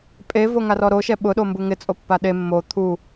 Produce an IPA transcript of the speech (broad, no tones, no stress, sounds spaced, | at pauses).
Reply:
pʼ e v o ŋ a r ɔ ɾ o ʃ ɛ ɓ ʊ ɗ o m b u ŋ ɪ t͡sʼ o pː a ɗ e mː o t̪ʰ u